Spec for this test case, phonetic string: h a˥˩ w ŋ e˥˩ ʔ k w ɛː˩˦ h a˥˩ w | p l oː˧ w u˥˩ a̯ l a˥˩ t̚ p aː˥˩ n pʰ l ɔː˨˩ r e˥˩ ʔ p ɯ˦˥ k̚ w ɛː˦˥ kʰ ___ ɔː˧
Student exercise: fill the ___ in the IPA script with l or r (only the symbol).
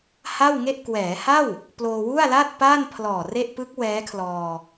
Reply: l